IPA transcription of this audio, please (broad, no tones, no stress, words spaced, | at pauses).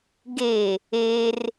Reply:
ɡe | er